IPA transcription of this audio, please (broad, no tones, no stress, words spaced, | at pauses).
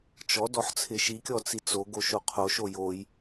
t͡ʃɔ dɔħt͡sʰɪʃikʲɔ t͡sit͡soɡo ʃoqʰoʃo joj